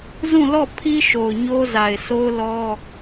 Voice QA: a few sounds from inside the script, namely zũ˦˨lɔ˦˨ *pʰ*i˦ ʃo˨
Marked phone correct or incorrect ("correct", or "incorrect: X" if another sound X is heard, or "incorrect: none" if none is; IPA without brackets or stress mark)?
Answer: correct